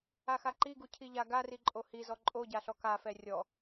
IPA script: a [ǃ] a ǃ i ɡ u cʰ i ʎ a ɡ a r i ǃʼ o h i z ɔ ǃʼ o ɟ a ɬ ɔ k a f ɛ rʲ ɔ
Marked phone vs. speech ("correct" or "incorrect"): incorrect